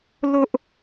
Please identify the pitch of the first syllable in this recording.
high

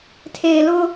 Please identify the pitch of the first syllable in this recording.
low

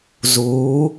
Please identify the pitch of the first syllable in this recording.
rising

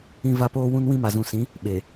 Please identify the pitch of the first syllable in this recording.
high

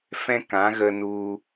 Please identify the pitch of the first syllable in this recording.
high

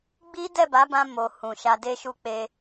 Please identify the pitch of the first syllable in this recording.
high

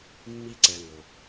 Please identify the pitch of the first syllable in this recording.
high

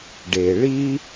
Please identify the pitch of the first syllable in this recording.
low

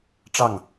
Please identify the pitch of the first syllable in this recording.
falling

